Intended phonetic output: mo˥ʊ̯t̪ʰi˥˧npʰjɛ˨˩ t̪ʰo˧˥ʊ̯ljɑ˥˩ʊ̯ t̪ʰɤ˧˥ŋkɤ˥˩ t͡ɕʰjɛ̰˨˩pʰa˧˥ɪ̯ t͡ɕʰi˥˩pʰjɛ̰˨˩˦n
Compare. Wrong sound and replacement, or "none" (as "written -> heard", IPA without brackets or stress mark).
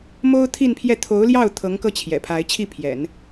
ɛ˨˩ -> ɛ˥˩